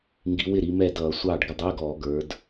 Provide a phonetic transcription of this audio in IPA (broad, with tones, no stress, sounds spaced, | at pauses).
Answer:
ŋ ɡ i˨˦ w ɪ˥˩ ɾ i˨˦ m ɛ˥˩ d ʌː˧˩˧ sʷ ɑː˥˩ ɖ ɡ ə˥˩ dˤ ɪː˧˥˧ ɡ ɔː˧˩˧ ɡ ə˞˨˦ d